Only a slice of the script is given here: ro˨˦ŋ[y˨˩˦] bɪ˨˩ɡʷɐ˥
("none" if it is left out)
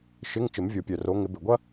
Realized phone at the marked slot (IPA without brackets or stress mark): ɪ˨˩˦